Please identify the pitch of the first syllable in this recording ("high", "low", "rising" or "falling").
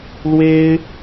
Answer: high